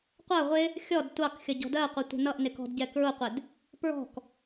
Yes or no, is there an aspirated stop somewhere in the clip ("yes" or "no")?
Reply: no